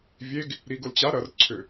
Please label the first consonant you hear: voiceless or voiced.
voiced